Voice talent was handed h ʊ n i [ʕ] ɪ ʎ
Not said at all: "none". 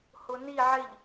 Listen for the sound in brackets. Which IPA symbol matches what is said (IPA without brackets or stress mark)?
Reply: ʕ